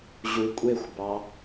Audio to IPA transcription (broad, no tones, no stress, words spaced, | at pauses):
ʑukʷʼexʷbɑ